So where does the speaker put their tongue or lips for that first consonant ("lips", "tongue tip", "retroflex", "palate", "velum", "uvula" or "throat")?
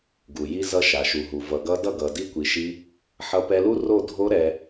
velum